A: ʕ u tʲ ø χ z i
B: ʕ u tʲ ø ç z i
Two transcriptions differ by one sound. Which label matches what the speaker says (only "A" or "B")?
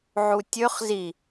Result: A